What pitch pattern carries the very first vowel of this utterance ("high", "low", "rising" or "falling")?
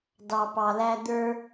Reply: low